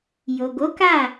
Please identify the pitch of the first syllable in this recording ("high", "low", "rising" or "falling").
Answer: low